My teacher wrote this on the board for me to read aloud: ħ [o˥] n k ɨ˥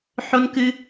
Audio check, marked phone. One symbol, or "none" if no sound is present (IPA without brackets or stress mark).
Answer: o˥